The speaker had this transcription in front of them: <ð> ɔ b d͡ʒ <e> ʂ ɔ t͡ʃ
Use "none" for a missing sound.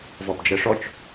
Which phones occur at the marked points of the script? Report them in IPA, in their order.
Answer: v, ɛ

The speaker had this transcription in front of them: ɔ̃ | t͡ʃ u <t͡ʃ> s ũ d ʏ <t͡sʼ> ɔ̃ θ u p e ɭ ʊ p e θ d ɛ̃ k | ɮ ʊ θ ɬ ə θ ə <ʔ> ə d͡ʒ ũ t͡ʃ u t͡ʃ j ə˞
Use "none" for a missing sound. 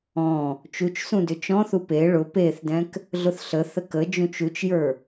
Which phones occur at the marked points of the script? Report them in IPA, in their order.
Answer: t͡ʃ, t͡ʃ, k

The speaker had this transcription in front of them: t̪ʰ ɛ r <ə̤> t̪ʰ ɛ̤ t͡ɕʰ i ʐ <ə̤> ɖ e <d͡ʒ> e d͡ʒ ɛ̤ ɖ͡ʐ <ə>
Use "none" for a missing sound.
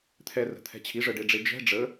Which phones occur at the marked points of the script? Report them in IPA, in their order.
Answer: ə̤, ə, ɖ͡ʐ, ə

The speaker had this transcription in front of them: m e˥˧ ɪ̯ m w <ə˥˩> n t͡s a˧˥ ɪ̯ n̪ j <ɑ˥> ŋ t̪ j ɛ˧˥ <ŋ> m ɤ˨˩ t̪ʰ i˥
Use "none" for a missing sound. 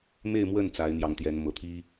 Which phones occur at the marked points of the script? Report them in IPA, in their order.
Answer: ə˥˩, ɑ˧˥, n

